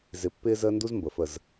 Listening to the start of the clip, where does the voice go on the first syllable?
rising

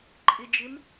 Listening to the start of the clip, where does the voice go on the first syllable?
low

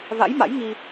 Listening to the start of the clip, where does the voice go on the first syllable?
rising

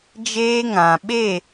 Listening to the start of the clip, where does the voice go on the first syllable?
high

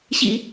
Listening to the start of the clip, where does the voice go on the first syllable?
low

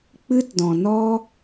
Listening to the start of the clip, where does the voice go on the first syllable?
high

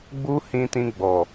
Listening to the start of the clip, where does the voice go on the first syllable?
high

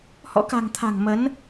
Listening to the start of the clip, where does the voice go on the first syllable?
rising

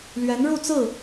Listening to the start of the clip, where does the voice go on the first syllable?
rising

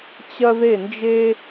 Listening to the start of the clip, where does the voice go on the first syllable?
high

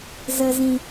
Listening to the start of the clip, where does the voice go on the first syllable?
low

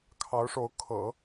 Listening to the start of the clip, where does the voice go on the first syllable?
rising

